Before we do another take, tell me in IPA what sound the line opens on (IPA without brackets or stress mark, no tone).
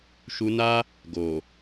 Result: ʃ